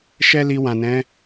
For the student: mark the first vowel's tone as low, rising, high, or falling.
high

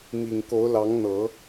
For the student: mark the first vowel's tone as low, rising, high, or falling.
low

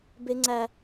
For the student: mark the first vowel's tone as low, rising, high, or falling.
high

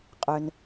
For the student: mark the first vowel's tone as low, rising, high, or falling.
low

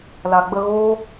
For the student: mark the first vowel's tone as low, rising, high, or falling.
low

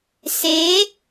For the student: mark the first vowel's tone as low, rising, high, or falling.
rising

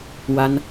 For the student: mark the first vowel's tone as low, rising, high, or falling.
high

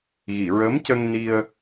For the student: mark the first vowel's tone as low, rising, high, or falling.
low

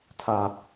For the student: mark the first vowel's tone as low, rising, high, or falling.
high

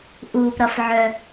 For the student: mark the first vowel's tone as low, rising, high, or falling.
low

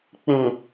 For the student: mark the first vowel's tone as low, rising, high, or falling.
low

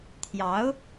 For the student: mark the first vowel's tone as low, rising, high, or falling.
rising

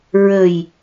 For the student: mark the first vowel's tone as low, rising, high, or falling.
low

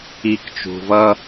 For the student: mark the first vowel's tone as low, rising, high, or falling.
low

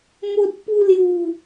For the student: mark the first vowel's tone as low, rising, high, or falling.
high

